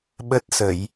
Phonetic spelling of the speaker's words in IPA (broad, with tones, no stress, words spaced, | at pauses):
ɓə˦˥t̚sə˧˩˨j